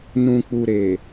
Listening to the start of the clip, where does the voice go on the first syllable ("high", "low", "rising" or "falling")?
low